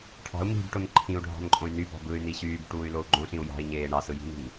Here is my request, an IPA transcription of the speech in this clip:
ʈʰ ɑ̤ u̯ m i̤ b ʈ o n ǃʰ ĩ u̯ ɖʱ ɑ̤ n ǃʼ õ y̯ n y b ɑ̤ b ɯ y̯ n i ɕ yː b ʈ uː y̯ l o u̯ ɡ͡ǃ õ ɬ ĩ u̯ j ɑ̤ i̯ ɲ eː ɳ ɑ s ɯ j i̤ n i̤ n

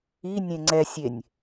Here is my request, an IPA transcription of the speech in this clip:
i nʲ ẽ ŋ͡ǀ ɛ sʲ e nʲ

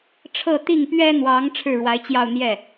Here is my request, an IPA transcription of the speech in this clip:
ʈ͡ʂʰ ɤ˥˧ t̪ i˥˩ ŋ p ɥ ɛ˥ n̪ w ɑ˧˥ ŋ ʈ͡ʂʰ ɻ̩˥˩ ɻ w a˧˥ ɪ̯ t͡ɕ j ɑ˥˧ ʊ̯ n̪ j ɛ˥˩

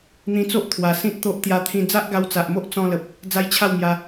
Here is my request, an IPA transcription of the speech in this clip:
n̪ ĩ˧ t͡s o˦ ʔ t̪ʰ w a˨˩ s ĩ˦ t̚ t̪ o˦ ʔ t̪ j a˧ t̪ʰ ĩ˧ d͡z a˦ ʔ ɡ a˧ w t͡s a˨ ʔ m o˦ ʔ t͡s ɔ̃˦ l ə˨ p̚ | d͡z a˦ j t͡ɕʰ a˥˧ w m j a˧

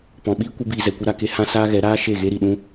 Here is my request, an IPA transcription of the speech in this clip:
p ɔ̃˨ ɓ iː˦ kʷ ə˦ b iː˧ z ɛ˨ kʷ ɨ˧ ɾ a˨ k e˦ h ã˦ s aː˦ ɣ ɛ˨˦ ɾ aː˦ ʃ e˦˨ ɣ e˦ ɾ i˨ ɗ ũ˦

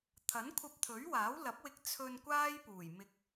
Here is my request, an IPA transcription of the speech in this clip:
t̪ʰ ɐ˨˥ n kʷʰ ɐ˧ p̚ t̪ʰ ɵ˨˥ ɥ w aː˨˥ w l ɐ˨˥ p̚ w ɪ˧ k̚ t͡sʰ ɵ˧ n kʷ aː˥ j p uː˨˩ j m ɪ˧ k̚

